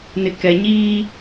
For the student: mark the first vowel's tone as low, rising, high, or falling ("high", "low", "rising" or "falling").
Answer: low